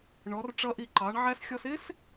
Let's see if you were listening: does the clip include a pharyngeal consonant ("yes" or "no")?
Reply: yes